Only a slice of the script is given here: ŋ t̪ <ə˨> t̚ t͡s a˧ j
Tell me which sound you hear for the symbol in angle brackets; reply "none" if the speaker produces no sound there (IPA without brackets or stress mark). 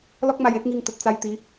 ə˨